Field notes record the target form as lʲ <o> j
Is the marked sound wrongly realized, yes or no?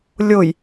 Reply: no